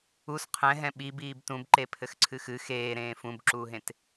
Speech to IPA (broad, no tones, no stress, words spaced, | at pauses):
us qʰɛ̃ɦɛ̃ ɓi biːbtũb ǃepʰɘxǀʰɨxɨ xeːɾẽː fũbǁuːɦẽt